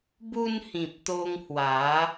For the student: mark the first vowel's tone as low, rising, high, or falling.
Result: high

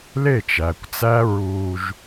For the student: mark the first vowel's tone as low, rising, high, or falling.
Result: falling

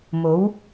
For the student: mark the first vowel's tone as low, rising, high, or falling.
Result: rising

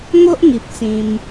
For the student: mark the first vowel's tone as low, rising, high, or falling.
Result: high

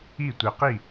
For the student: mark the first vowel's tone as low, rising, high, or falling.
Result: falling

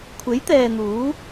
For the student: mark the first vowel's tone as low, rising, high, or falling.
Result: rising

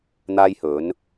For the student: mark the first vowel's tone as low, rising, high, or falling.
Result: high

